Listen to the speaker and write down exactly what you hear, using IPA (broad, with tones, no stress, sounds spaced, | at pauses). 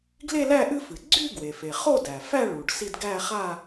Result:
ɡ l e˥˧ l æ˥˧ ʔ ɨ˥˧ f ɨ˩ ɡ͡ǀ y˥˧ ɡ w e˩ f e˩ χ o˥˧ d æ˩ f æ˥˧ ɭ u˩ ɖ s i˥˧ d ɡ æ˥˧ χ a˥˧